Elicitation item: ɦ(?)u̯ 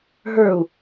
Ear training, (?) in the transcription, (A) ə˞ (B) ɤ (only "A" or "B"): A